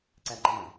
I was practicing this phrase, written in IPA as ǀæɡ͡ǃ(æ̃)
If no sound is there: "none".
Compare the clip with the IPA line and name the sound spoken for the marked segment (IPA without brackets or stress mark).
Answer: æ̃